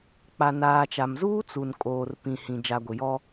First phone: k͡p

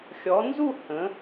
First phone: xʲ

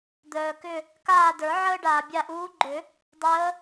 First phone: d̪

